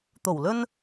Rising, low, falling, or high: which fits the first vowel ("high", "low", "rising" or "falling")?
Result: low